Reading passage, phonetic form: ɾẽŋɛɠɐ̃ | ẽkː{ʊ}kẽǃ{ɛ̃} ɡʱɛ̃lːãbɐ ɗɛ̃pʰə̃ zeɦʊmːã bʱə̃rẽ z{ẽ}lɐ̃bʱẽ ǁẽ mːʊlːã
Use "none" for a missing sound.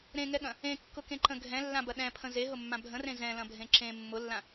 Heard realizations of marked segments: ʊ, ə̃, ɛ̃

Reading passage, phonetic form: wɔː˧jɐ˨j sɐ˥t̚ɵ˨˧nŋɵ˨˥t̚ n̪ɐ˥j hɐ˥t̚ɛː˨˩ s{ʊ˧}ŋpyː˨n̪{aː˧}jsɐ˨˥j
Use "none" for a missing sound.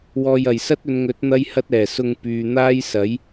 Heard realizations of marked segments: ʊ˧, aː˥

